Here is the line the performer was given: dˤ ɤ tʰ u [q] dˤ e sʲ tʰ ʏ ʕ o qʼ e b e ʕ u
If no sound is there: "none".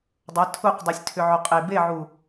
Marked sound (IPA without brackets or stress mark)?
q